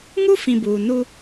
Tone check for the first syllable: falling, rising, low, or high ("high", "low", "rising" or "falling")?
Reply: high